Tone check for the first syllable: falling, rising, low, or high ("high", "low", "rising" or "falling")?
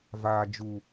low